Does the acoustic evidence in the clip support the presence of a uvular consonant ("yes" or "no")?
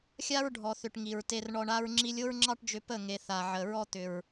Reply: no